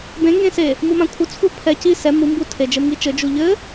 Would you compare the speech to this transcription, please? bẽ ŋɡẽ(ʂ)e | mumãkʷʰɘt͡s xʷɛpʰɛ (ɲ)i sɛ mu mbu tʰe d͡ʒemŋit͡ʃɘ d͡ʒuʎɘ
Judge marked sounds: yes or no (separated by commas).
no, no